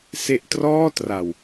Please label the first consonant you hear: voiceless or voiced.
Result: voiceless